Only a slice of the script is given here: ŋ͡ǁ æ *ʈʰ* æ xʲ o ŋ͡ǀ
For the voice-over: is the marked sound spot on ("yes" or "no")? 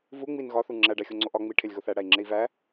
no